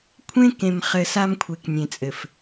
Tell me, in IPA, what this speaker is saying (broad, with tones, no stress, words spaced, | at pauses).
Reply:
kʷʰẽ˦kẽ˨mχɘ˨ sa˦mkʷʰe˨knʲẽ˨t͡sʼɘ˨f